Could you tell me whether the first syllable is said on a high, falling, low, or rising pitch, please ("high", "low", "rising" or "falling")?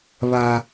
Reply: high